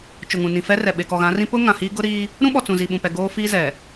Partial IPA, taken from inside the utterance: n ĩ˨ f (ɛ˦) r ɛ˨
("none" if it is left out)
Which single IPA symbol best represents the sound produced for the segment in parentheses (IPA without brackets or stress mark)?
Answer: ɛ˦